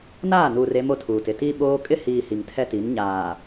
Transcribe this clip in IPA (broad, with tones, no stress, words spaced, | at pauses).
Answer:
naː˦˨nuː˨r e˦mo˦tʰuː˨tɪ˨ ti˦ɓoː˦ kʼɪ˦hiː˨ hi˨ŋtʰɛ˦ti˨˦n ɲaː˨